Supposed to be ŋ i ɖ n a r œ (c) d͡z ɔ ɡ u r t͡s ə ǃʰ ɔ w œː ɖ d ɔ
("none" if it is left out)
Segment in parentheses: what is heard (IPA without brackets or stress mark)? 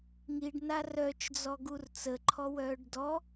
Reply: t͡ʃ